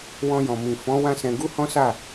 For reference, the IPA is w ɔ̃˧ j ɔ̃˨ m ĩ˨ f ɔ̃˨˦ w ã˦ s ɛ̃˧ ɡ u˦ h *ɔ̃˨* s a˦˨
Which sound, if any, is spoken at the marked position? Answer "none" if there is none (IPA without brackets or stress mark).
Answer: ɔ̃˦